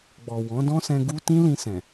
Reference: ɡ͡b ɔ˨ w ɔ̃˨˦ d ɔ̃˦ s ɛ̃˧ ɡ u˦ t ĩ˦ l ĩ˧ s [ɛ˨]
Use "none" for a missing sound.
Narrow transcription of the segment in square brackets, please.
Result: ɛ̃˨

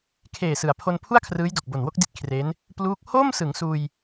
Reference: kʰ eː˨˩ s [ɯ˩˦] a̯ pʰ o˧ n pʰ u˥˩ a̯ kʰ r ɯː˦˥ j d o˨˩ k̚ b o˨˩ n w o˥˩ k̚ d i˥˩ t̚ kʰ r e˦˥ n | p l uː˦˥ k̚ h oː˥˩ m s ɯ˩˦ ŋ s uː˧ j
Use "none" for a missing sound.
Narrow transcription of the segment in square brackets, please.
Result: ɯ˩˦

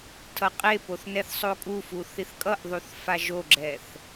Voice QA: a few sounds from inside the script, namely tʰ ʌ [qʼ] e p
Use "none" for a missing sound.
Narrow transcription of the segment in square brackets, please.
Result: qʼ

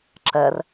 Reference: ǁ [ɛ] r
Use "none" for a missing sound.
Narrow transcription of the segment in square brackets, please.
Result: ɛ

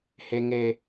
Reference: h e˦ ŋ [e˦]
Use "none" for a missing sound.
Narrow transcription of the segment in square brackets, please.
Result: e˦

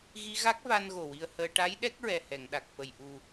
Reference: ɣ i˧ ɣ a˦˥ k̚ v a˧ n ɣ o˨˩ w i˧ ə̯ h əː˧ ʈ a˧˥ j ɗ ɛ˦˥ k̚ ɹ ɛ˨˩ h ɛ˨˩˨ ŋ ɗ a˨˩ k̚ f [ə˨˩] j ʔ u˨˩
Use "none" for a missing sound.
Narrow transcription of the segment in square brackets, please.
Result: ə˨˩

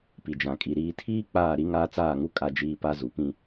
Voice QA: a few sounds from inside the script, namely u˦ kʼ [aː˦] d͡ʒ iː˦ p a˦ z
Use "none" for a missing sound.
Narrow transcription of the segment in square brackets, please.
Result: a˦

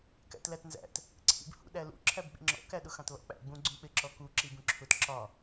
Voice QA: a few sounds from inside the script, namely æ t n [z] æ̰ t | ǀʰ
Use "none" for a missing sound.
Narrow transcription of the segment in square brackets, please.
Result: z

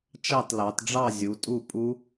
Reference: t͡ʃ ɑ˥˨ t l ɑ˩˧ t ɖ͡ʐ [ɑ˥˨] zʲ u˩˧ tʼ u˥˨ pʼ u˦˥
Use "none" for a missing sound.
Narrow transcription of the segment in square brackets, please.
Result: ɑ˥˨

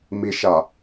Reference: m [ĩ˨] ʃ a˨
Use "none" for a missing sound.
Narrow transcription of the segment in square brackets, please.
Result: i˨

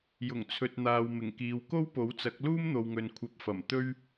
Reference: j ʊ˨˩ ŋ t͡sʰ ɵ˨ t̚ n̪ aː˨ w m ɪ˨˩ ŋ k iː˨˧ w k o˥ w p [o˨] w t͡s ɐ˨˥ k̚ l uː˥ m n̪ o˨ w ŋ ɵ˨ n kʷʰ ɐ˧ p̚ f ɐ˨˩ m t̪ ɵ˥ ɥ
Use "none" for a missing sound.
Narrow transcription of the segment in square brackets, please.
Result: o˨˥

